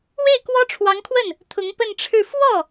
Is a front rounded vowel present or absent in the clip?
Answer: absent